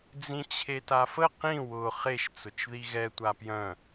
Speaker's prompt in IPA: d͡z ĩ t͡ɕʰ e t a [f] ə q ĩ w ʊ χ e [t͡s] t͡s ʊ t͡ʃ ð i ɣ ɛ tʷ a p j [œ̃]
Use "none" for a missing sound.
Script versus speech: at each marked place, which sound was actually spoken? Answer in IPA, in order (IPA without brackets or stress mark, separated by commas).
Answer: f, ʃ, œ̃